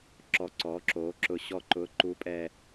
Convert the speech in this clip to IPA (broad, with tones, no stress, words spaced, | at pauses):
ǁɔ˨˩ǀɔ˩˧ǁoː˩˧ǁʊ˨˩ ɕɔ˨˩ǃʊː˩˧ǃu˩˧pʼɛː˨˩